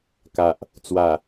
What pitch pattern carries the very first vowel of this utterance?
low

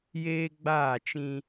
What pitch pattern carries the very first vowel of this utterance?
high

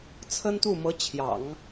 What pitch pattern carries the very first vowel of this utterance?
high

